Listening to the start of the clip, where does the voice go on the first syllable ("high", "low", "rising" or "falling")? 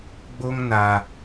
high